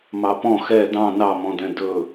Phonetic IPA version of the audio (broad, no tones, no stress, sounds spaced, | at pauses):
m ɑ p ɔ̃ x ɛ d ɑ̃ n ɑ m ɔ̃ d ɛ̃ d ɵ